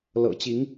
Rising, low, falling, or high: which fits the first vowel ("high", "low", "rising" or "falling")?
low